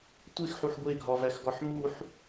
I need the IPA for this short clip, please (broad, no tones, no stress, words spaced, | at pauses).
tʷexħuħ ɡʷeɡʱɒvæxɡɒħ muħ